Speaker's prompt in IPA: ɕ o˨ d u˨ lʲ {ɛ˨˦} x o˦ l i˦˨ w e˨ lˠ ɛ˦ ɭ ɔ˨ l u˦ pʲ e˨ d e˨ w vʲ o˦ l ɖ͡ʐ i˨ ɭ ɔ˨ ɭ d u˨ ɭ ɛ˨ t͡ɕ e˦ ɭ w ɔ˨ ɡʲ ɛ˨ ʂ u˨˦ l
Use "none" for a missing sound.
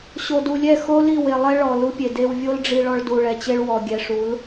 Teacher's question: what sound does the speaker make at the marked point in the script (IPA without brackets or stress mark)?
ɛ˦˨